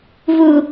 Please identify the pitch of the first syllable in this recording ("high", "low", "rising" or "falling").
high